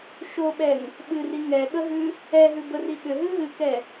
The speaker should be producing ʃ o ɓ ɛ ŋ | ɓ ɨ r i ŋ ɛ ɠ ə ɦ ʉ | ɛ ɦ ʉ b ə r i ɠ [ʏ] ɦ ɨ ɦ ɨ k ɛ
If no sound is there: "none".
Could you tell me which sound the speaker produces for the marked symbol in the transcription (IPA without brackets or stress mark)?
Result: ʏ